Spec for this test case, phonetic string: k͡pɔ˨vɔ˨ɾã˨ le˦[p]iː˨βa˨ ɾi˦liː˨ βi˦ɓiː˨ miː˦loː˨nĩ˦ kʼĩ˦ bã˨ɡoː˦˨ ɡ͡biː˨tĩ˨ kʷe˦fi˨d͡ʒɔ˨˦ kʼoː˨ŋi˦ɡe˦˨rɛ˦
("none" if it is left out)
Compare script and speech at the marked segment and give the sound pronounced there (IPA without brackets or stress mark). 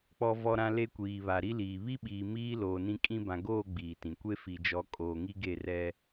kʷ